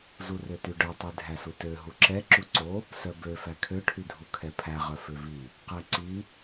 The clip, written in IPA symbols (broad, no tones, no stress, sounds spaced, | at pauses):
z u r ø t y ɖ œ tˤ y dʱ æ s u t ø ɦ u ǁ ɛ ǁ u ǀ o | s œ b ø f æ kʰ ø ʈʰ y dʱ u kʰ ɛ pʰ æ ʁ œ f ø v i | q æ ǀ i